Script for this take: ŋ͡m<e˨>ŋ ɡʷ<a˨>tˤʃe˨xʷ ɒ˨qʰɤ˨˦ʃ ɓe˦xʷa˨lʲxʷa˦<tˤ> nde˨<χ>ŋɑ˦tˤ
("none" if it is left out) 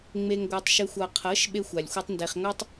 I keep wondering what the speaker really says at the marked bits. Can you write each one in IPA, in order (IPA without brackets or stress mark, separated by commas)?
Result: e˨, ɑ˨, tˤ, χ